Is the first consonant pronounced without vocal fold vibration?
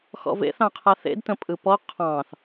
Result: yes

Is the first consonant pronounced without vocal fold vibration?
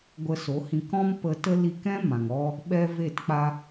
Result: no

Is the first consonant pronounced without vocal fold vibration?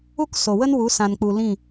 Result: yes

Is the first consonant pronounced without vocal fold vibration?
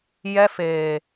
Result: no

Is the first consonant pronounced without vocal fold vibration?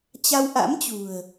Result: yes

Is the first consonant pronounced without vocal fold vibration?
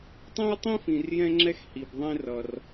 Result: yes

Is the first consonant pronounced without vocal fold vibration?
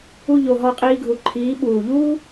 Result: no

